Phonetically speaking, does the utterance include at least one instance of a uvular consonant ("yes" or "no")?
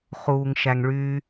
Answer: yes